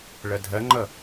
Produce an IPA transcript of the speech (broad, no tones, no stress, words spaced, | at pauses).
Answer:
ɭɐdʱɐŋ͡ǃʌ